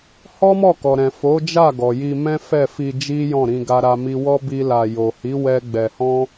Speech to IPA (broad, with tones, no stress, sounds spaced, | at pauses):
h ɔ˦ m ɔ˦˨ k ɔ˨ ɾ ɛ̃˨ f o˨˦ d͡ʒ a˦˨ ɡ ɔ˨ j i˧ m ɛ̃˦ f ɛ˦˨ f i˧ d͡ʒ i˦ j ɔ̃˦˨ ɾ ĩ˧ ɡ a˦ ɾ a˦ m i˦ w ɔ˦ b i˦ l a˧ j o˨ h i˨˦ w ɛ˦ ɡ͡b ɛ˧ h ɔ̃˦